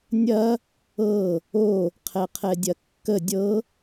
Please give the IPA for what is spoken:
nʲ ɐ | ɤ | o | qʰ ɛ qʰ ɛ dʲ ɐ kː ə dʲ ɤ

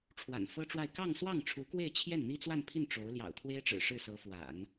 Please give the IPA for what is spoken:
ʈ͡ʂʰ w a̰˨˩ n f ɤ˥ ʈ͡ʂ w a˥˧ ɪ̯ k ɑ˥˧ ŋ s w ɑ˥˩ ŋ ʈ͡ʂʰ u˧˥ k w e˥˧ ɪ̯ t͡ɕʰ j ɛ˥˩ n n̪ i˥ t͡s w a˥˧ n pʰ i˥˩ n ʈ͡ʂ o˧˥ ʊ̯ l j ɑ̰˨˩ ʊ̯ t̪ʰ w e˥ ɪ̯ ʈ͡ʂ ɻ̩˨˩ ʂ ɻ̩˥˩ s ɤ˧˥ f w a̰˨˩˦ n

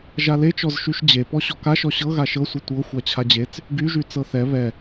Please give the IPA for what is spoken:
ʒ a l e t͡ʃ ɔ z ʃ y ʃ d͡ʑ e p ɔ ɕ ɔ k a ʃ ɔ ɕ ɤ ɣ a ʃ ɤ sʷ e tʷ ɤ xʷ a t͡ɕʰ a d͡ʑ e t͡s | ɡ y ʒ y t͡s ɤ θ ɛ β ɛ

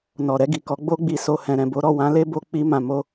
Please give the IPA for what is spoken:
n ɔ˨ ɾ ɛ˧ ɡ i˨ k ɔ˨˦ ɡ͡b o˧ ɡ͡b i˨ s o˨ h ɛ̃˨ ɾ ɛ̃˨ b o˨˦ ɾ ɔ˦˨ w ã˧ l e˦ b o˧ k͡p i˧ m ã˨ m o˧

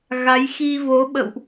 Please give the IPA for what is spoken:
ɣ a˨˦ j x i˧ v o˨˦ ɓ ə̰˧˨ w ʔ

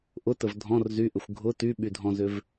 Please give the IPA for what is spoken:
ʔ ʊ t ə v dʱ ɔ̃ r z y ʔ ʏ xʷ ɡʱ ʊ t y ɓ y dʱ ɔ̃ z ʏ v

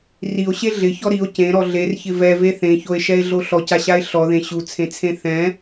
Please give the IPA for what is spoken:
r i o̯ ɕ e ɮ ɪ ç ɔ ɾ i o̯ c ẽ ɾ ɔ ɮ e r ç ɪ v ɛ v e θ ẽ ç o e̯ ʃ ɛ e̯ ɮ o ɬ ɔ c a ɕ a e̯ ɬ ɔ ð ẽ ɕ u t͡sʰ ẽ t͡sʰ ẽ θ ɛ̃

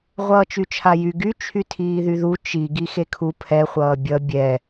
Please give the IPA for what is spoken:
ʁʷ ʌː t͡ʃ y t͡ʃʰ a j y ɡ y t͡ʃʰ y tʰ iː ð y ð u t͡ʃ i ɡ i x e kʰ u pʰ ɛ χʷ ʌː bʲ ʌ bʲ ɛ

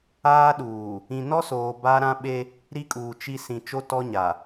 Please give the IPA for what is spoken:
aː˦ ɗ uː˨ | ĩ˨ n ɔ˦ s oː˨ b a˦ ɾ ã˦ ɓ e˦ | ɾ i˦ kʼ uː˨ t͡ʃ i˦ s ĩ˨ t͡ʃ o˦ t ɔ˦ ɲ a˨

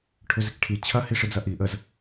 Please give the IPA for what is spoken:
ʈʰ ø z ɪ k ʈʰ i t͡ɕʰ ɐ h i ʂ ɪ d͡z ɐ ʔ i ʔ ə z

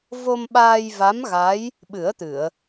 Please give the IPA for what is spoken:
v o˧ m ɓ aː˧ j v a˧˥ m ɣ a˧˥ j | ɓ ɨ˨˩˦ ə̯ t̪ ɨ˨˩˨ ə̯

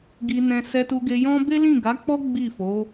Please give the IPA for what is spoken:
ɡ i˧ n ɛ̃˧ s ɛ˧ t u˧ ɡ e˧ j ɔ̃˦ b e˦ l ĩ˦˨ ɡ a˨˦ k͡p ɔ˦ ɡ͡b i˦˨ f o˨˦

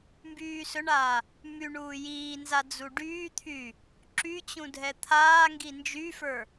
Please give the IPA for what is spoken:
m b yː s ɵ ɳ aː | m y ɳ uː j iː n z a d͡z u ɖ yː t̪ʰ yː | ǁ y t͡ɕ ũ dʱ ɛ t̪ʰ aː ŋ ɡ i n d͡ʒ y f ə˞

